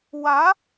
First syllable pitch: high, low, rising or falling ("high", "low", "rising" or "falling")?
rising